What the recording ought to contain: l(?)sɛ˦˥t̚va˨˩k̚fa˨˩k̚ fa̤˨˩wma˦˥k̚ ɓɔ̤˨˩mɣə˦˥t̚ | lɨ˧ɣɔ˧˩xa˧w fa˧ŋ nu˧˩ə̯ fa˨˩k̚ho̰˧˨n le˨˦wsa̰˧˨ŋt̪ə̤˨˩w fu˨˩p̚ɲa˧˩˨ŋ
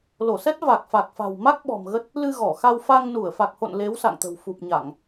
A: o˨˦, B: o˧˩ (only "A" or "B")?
B